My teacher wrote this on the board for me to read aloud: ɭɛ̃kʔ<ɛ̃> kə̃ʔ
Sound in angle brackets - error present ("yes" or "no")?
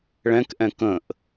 no